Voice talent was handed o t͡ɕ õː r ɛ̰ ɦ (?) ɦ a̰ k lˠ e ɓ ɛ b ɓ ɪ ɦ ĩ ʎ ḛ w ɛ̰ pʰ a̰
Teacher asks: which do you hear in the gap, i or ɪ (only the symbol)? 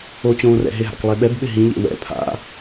ɪ